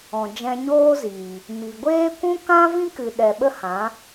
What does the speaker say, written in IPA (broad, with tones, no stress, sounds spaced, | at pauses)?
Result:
ɔ̃˨ d͡ʒ ɛ̃˧ ɲ oː˦ z iː˨ | m i˨ ɡʷ eː˦ kʷ ũ˦ k ã˦ v ĩ˦ k ɨ˨ ɗ ɛ˨ ɓ ə˦ h ã˨˦